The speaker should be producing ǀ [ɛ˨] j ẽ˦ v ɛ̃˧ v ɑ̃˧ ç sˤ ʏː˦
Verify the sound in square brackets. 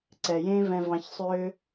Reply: correct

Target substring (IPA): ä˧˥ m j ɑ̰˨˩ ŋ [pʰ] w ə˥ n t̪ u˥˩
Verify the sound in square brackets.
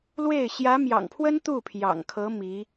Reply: correct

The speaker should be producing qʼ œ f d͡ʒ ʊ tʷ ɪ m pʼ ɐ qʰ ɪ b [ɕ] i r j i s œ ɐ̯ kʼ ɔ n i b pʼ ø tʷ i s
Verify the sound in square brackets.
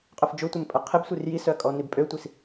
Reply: incorrect: sʷ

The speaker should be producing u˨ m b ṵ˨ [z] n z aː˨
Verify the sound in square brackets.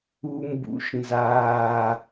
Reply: incorrect: ʃ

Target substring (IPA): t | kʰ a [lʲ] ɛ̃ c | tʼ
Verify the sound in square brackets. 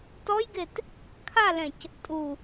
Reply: incorrect: l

